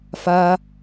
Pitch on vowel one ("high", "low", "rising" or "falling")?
high